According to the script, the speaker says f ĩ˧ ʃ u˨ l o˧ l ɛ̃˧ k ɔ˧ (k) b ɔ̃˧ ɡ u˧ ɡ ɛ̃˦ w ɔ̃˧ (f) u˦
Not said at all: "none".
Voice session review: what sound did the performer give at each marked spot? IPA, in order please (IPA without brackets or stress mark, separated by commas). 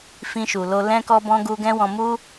none, m